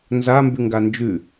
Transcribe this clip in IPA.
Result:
n z a m b ʉ ŋ ɡ a n d͡ʒ ʉ

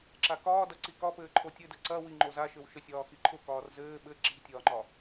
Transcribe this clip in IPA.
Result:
ǁ a k ɒː d ɐ ǀ i k ɒ p ɘː ǃʰ o tʲ ɘ d ɘ ǀ ɐ w i ŋ͡ǃ o z a ʃ ɘ w ʃ ɘ sʲ ɒː x i ǃʰ ʊ k ɒː r z ɘː ɓ ɘ ǁ i̤ tʲ ɒː ŋ͡ǃ ɒ

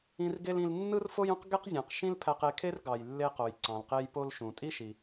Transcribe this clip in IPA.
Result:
ĩ˧ r ɡ e˥ l ĩ˧ l nː ɯ˥ r f o˥ j ũ˥ q ɡ e˥ q zʲ ɑ̃˩ q ʃ ĩ˥ l pʰ æ˧ q e˧ kʰ e˥ r ɡ ɑ˩ j lː e˥ q o˩ j ǀ ɑ̃˩ l q e˧ j p o˥ l ʃ ũ˩ tʼ i˥ ʃ i˩

